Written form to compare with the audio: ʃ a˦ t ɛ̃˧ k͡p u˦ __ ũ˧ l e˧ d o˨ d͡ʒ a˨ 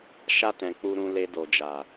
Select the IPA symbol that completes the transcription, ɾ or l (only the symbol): ɾ